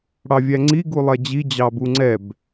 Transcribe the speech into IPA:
ɽɑvʲæŋ͡ǀi ɡulˠɛd͡ʑi d͡ʑɑbuŋ͡ǀɛb

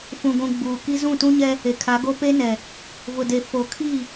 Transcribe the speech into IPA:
fũ˨ɡʷũ˨ ɡ͡buː˨ki˦ zũ˦˨tũ˦ɲɛ˦ | e˨kʰa˨˦ɡo˦ pe˦nɛ˨ | vʊ˨de˨ fo˨kʰi˦˨

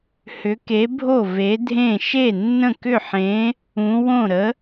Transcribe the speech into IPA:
hʏ˨˥ke˨˥bʱo˥˩ ve˨˥dʱẽ˥˩ ʃe˥˩nːə̃˥˩kʏ˥˩ħẽ˨˥ | ũ˨˥ wõ˥˩ɾə˨˥

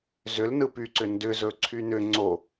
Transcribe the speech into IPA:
zʏlnɯ pyǀʏ ndʏ zɵǀʰynʏ ŋ͡ǀo

